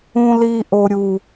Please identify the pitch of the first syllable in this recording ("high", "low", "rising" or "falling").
high